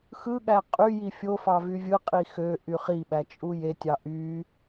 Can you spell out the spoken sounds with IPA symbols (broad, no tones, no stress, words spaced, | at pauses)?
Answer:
xɯɠæ qʼyji fʲofɑ vyvʲɯqʼi xø ʔyχiɓæ t͡ʃʼujetʲɑ ʔy